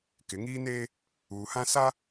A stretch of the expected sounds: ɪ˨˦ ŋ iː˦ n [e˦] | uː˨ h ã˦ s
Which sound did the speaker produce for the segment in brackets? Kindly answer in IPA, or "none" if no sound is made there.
eː˦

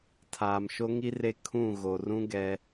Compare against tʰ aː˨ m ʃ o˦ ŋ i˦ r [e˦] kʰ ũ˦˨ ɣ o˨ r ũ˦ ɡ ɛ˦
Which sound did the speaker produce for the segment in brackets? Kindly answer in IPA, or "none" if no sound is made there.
e˦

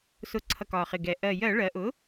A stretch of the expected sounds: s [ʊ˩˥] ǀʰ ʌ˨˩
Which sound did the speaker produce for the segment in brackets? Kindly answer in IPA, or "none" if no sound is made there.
ʊ˩˥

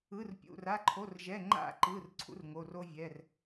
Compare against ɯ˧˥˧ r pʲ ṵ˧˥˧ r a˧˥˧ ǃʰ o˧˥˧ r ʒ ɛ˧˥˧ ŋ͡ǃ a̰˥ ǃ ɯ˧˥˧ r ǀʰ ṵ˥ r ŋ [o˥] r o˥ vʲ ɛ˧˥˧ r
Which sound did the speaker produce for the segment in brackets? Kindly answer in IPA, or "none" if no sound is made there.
o˧˥˧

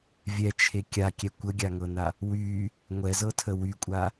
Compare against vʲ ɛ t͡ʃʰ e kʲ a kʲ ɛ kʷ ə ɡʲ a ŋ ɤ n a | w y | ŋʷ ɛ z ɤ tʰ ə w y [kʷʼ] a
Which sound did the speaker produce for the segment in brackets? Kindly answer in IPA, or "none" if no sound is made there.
kʷʼ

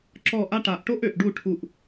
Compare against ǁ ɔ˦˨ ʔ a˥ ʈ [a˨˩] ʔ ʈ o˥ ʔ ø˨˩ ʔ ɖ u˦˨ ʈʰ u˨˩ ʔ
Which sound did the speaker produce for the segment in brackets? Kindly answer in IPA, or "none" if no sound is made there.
a˨˩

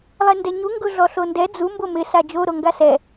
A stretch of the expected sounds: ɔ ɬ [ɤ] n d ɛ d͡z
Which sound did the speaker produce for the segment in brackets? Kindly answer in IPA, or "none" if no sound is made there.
o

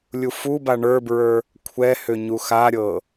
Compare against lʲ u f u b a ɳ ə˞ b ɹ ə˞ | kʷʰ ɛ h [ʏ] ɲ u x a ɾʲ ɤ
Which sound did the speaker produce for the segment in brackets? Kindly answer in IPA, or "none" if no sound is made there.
ʏ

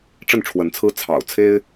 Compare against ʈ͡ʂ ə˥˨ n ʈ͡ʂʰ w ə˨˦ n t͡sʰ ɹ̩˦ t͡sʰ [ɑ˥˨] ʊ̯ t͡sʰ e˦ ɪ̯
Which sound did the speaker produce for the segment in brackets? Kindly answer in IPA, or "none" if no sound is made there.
ɑ̰˨˩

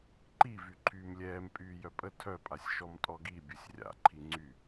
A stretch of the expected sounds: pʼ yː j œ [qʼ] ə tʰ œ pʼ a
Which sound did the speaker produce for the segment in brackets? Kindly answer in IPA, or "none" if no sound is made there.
pʼ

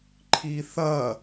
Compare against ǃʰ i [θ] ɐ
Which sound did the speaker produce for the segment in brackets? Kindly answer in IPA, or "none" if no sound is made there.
θ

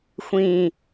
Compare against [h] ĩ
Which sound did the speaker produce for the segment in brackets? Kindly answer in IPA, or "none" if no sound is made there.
xʷ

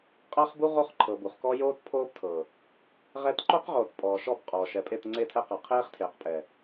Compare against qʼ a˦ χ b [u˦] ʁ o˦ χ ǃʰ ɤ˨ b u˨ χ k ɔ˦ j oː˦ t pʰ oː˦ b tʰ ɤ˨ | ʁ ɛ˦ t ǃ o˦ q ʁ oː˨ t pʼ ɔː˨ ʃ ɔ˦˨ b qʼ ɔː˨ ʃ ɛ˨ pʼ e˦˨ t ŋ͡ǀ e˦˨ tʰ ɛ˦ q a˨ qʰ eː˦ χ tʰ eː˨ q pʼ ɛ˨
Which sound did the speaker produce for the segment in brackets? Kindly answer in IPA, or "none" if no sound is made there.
u˦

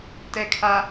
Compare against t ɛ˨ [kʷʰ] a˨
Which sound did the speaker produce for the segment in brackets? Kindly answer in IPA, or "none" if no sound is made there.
kʰ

